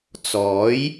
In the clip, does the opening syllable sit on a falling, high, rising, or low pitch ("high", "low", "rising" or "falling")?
rising